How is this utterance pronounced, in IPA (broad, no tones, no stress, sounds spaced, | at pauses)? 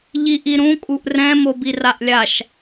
ʎ i ʔ i ɾ ũ kʼ u ʔ r ɛ̃ m o b i r a ʔ lʲ a ʃ